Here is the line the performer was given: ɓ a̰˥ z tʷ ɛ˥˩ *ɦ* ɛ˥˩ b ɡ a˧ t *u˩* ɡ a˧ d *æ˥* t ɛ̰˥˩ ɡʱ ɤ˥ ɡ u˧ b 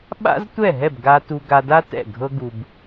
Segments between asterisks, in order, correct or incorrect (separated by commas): correct, incorrect, incorrect